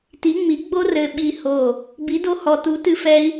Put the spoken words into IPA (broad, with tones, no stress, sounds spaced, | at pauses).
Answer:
t i˨˥ ŋ͡m i˨˥ ɡ͡b o˦ r ɘ˧˩ ɓ i˧˩ h o˧˩ | b i˨˥ d o˦ h ɔ˧˩ t u˨˥ t ɨ˦ f ɛ˦ i̯